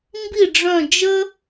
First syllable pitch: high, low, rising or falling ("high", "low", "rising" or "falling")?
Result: falling